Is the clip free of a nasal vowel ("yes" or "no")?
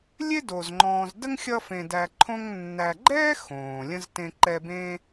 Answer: no